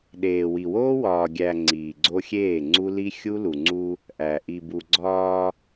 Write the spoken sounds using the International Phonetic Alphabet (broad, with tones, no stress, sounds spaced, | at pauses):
ɗ eː˨ w i˨ w oː˦ w ɒː˨ ɡʲ æ˨ ŋ͡ǀ iː˨ ɡ͡ǀ o˦ xʲ eː˦˨ ŋ͡ǀ u˦ l i˦ xʲ u˦ l u˨ ŋ͡ǀ u˦ | ʔ æ˨ ʔ i˨ b u˨ ɡ͡ǀ ɒː˦